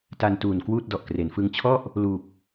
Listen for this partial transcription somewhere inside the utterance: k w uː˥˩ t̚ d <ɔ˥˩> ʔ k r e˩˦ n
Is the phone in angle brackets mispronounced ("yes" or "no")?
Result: yes